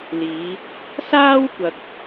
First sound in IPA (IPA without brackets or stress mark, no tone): l